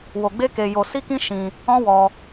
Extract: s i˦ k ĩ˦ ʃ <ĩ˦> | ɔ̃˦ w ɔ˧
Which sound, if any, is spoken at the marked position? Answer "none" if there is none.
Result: ĩ˧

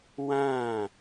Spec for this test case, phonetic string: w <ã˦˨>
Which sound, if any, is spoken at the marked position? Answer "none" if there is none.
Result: ã˦˨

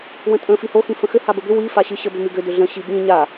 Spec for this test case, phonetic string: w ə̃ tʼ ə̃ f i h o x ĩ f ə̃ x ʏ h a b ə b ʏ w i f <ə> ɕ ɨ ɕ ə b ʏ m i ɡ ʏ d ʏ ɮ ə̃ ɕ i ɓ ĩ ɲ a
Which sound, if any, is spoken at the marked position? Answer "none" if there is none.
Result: a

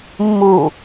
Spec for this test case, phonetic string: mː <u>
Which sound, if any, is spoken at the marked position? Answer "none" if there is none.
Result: u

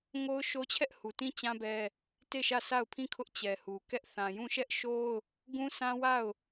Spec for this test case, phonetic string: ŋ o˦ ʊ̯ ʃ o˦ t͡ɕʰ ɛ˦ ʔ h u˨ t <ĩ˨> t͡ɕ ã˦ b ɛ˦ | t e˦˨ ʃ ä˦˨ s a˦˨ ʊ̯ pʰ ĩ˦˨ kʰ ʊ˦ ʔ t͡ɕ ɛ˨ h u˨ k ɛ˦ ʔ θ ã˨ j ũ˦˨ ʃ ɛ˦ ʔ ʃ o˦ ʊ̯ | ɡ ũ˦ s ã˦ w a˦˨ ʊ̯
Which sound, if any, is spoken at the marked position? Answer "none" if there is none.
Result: ĩ˦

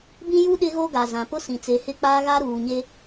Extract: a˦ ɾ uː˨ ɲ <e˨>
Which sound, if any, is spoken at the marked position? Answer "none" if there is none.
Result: e˦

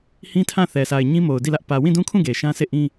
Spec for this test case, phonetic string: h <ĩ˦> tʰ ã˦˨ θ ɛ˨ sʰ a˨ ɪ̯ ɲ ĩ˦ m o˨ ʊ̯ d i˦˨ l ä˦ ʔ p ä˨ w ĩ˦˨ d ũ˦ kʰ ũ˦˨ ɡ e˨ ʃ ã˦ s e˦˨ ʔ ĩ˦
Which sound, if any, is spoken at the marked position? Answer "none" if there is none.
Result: ĩ˦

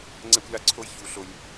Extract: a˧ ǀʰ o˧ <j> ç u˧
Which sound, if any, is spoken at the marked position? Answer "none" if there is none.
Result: j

